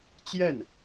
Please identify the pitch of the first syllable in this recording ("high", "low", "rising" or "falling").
falling